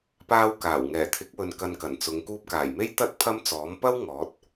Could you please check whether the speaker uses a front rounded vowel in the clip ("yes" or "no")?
no